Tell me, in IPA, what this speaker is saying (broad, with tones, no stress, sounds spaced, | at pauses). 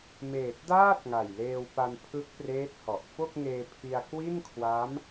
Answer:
m eː˨˩ t̚ d aː˥˩ t̚ ŋ a˨˩ j l eː˧ w p a˧ n pʰ ɯ˦˥ k̚ p r eː˦˥ t̚ h ɔ˨˩ ʔ f o˥˩ k̚ ŋ eː˧ pʰ i˧ a̯ k w i˥˩ n kʰ w a˦˥ m